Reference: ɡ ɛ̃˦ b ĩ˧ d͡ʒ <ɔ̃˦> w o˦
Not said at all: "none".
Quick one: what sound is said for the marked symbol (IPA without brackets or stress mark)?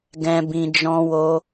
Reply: ɔ̃˦